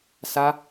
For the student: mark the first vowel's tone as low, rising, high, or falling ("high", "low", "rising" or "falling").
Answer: high